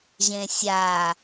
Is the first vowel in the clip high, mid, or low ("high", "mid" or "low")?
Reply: mid